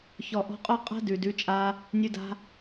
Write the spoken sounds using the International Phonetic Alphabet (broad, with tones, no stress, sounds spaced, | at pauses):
ç ɔ˨ ʔ ɔ̤˧ qʼ ɔ˦ qʼ a̤˦ d ʉ˨ d ʉ˨˦ t͡ʃʼ a˧ | nʲ ʉ˧ d a̤˧